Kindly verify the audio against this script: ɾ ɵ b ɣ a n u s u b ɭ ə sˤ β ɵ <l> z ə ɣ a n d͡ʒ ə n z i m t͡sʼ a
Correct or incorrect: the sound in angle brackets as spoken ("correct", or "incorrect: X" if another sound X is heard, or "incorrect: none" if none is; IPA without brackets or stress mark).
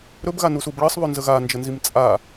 incorrect: n